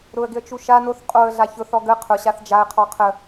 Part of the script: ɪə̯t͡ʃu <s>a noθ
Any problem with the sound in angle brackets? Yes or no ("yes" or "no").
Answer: yes